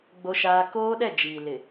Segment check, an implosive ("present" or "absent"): present